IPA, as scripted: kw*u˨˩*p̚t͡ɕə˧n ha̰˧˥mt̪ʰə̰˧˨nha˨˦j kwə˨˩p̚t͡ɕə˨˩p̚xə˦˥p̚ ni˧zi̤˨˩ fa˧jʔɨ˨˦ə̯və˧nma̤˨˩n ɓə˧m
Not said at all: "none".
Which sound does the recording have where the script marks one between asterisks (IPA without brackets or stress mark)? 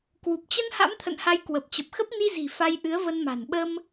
u˨˩